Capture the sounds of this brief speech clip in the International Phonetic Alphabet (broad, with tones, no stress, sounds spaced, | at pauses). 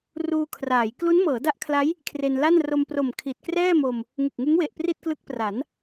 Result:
r uː˧ kʰ r aː˩˦ j k l u˦˥ n m ɤː˩˦ d a˦˥ ʔ kʰ l a˦˥ j | kʰ r e˧ n l a˥˩ n r o˧ m p r o˨˩ m kʰ i˨˩ t̚ k r ɛː˥˩ m o˧ m | ŋ ɯ˨˩ k̚ ŋ ɯ˦˥ ŋ w e˨˩ ʔ p r i˥˩ t̚ k l ɯ˦˥ k̚ p r a˩˦ n